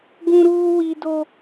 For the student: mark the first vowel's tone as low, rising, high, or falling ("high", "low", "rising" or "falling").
high